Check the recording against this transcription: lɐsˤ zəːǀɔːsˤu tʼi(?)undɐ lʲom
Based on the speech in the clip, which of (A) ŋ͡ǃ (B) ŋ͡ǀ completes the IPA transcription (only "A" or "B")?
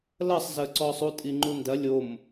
A